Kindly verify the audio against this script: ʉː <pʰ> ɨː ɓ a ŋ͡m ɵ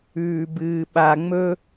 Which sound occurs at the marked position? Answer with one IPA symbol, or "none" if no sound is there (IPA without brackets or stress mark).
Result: b